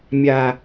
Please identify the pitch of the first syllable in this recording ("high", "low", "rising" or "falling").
low